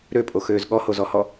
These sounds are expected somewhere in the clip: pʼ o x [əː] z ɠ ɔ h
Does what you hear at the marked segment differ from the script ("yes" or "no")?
yes